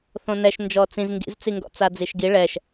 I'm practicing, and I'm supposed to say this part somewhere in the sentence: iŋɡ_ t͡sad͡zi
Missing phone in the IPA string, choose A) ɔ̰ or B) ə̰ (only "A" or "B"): A